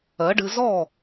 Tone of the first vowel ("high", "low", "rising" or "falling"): rising